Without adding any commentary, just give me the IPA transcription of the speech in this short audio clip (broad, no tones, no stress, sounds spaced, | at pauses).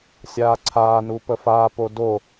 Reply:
sʲ aː ǀʰ aː n u p ə f aː p o d o